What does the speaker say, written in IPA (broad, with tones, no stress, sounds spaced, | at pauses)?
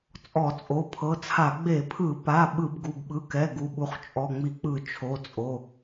t͡sʼ ɔ˧˩˧ t͡sʼ o˩˧˩ pʰ ɤ˩˧˩ t͡sʰ a˧˩˧ ɡ͡b e˧˩˧ pʰ ɯ˧˩˧ p a˩˧˩ ɓ ɯ˧˩˧ b ɡ u˩˧˩ b ɓ ɯ˩˧˩ k ɛ˩˧˩ ɡ u˩˧˩ ɓ u˩˧˩ χ t͡ʃʼ ɔ˩˧˩ ŋ͡m i˧˩˧ k͡p ɯ˧˩˧ t͡ʃʰ o˩˧˩ t͡sʼ o˩˧˩